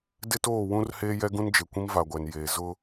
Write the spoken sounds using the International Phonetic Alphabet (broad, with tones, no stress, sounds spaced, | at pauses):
d ɪ˦ t oː˦˨ w ũ˦ r h eː˦ j ɛ˦ ɡ ũ˦ n d͡ʒ e˨ kʷ ĩ˦ m v a˨ ɡʷ ɛ˨ n j eː˨ z ʊ˦